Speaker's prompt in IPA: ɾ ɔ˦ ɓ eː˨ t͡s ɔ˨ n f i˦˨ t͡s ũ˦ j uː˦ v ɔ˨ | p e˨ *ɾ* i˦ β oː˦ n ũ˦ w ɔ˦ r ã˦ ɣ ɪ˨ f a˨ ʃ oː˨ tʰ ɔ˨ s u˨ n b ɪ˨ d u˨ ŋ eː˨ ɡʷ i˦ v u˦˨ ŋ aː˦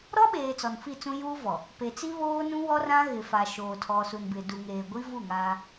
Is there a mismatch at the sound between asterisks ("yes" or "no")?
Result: yes